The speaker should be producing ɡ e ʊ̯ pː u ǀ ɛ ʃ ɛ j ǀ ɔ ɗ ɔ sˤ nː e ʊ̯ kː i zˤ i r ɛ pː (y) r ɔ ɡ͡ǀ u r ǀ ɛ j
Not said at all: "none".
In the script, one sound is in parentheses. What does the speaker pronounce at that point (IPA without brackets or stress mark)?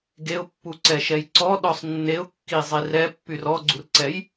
y